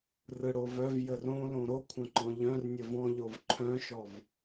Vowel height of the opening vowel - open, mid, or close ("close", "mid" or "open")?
close